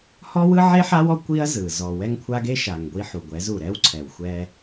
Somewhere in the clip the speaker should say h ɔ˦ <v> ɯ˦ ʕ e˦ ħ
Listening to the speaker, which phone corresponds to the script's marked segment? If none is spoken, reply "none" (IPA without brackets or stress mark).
w